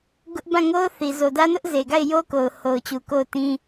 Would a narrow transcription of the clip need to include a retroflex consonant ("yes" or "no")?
no